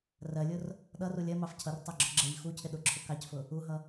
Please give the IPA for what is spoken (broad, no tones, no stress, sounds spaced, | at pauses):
r ɜ lʲ ʊ r | ɗ ʌ r u lʲ ɜ m ɑ f cʰ ʌ r tˤ ɜ ɡ͡ǁ ʊ ɡ͡ǁ ɜ ʎ x u cʰ ɪ ɗ ʊ ǁʰ ʊ k ɑ c f ʊ | u ɦ ʌ